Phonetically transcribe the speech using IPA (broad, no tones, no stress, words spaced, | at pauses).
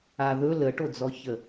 aðɵ ləʈod͡zɔçə